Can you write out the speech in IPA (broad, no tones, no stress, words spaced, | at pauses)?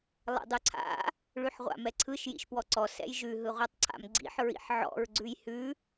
lˠɛ̰dˤʉǀʰa̰ | ɭʉħʁʷa̰mɛǀʰɯʃ jḭʃpwɔǀɔ sɛ̰jʒʉ ɦɯʁʷatˤǀʰa̰mɡ͡ǀḭħ ɹḭħʕɔ̰ɹ ɡ͡ǀʉjhʉ